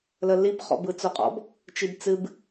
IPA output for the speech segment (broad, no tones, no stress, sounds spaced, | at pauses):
l ə l i b χ ɔ̰ b ɯ t͡s o qʼ ɔ̰ b | t͡ʃ i b t͡s ɨ b